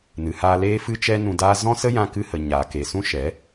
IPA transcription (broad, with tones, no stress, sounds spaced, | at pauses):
n ɨ˨ h aː˧ l eː˦ f ɨ˦ t͡ʃ ɛ˦ n ũ˧ d aː˦ z ɔ̃˦ s ə˦ j ã˧ k ɨ˧ h ə˨ ɲ aː˨ k e˨ s ũ˦ ʃ ɛ˨˦